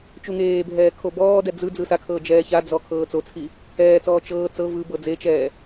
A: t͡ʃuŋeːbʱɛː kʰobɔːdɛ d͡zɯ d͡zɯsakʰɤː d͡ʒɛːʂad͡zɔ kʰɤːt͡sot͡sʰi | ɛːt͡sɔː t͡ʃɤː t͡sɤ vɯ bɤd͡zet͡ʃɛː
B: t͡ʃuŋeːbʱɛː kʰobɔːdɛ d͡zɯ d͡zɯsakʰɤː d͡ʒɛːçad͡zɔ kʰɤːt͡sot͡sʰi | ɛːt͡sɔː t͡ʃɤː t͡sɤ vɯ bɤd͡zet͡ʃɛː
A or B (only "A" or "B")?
B